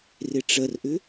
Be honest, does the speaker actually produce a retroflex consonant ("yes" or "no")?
yes